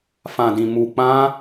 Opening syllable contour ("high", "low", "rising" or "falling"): low